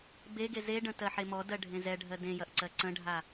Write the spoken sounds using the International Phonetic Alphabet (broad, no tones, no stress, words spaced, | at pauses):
beɡe zeɖə̃ tɜħemɔdɜ ɖʱẽzɛɖʱɜ dẽjɐʔ ǀɜǀə̃ɖʱa